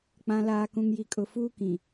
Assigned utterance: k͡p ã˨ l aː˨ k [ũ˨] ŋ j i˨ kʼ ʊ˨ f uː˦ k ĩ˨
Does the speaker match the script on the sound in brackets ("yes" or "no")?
yes